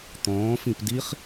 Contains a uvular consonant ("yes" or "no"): yes